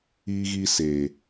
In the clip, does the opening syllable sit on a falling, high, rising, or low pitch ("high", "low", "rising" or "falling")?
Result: high